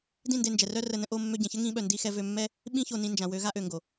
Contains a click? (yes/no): no